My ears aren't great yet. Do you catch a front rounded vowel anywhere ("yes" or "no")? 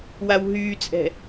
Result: yes